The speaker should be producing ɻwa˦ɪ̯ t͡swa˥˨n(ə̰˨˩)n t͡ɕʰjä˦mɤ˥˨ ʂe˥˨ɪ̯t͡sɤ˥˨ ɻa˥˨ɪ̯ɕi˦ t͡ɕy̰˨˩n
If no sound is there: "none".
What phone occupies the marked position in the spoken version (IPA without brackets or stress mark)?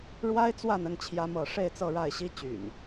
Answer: ə˥˨